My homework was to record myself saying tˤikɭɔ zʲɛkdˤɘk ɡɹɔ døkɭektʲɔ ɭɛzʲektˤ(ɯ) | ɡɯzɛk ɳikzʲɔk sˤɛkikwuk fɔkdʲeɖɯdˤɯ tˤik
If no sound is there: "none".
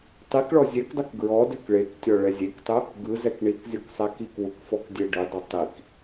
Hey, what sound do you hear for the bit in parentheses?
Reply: ɯ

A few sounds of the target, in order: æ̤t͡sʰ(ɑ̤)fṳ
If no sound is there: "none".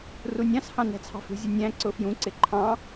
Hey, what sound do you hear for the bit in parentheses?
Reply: ɑ̤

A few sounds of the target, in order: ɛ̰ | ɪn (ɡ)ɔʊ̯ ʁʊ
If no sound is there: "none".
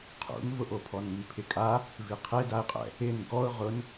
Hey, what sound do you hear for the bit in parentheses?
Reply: ɡ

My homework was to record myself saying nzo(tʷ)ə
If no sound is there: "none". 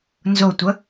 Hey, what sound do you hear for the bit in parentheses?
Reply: tʷ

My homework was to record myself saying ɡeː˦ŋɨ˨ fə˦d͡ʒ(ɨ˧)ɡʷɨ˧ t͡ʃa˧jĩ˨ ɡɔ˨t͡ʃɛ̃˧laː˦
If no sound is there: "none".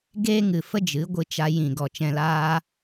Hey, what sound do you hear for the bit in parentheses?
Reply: ɨ˨˦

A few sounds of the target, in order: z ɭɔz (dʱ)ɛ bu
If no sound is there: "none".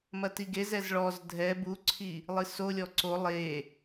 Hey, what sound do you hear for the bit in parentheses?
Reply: dʱ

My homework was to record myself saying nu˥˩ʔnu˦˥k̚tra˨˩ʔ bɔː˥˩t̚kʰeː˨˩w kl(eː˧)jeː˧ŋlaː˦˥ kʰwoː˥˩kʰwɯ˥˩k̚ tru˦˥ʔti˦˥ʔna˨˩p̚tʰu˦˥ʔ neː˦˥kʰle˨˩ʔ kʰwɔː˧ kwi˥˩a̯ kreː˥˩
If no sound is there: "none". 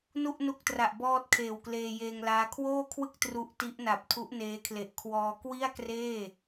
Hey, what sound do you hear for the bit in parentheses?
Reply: eː˧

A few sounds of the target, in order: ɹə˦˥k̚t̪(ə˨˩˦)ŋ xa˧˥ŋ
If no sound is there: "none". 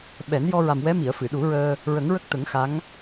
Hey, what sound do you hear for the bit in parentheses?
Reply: ə˨˩˦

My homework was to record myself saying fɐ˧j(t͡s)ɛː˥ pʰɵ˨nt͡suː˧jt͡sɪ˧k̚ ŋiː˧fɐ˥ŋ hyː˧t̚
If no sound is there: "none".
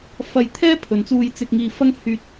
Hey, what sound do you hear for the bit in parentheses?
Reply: t̪ʰ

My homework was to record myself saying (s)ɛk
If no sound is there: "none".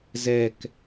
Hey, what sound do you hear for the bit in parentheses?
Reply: z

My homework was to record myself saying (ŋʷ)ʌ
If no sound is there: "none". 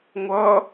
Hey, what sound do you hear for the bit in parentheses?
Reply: ŋʷ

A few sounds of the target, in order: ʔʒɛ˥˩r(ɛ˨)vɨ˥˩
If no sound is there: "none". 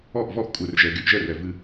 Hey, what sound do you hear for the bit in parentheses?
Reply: ɛ˨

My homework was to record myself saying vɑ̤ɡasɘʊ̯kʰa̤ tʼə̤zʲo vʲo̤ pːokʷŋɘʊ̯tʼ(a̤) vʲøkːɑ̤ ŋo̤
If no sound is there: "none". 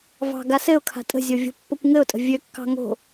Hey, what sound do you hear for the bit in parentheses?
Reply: ə̤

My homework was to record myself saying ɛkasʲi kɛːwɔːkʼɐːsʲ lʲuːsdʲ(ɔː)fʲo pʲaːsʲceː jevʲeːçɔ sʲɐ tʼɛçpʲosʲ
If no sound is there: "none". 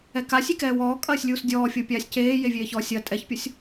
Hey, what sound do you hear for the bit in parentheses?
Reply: ɔː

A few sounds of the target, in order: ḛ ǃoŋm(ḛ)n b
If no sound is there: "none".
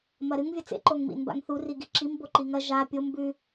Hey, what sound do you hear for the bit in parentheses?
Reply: ḭ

